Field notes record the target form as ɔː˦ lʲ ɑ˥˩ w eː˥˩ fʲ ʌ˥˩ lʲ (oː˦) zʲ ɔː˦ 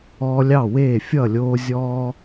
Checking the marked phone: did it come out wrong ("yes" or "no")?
no